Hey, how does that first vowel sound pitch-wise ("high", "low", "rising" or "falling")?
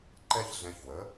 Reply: high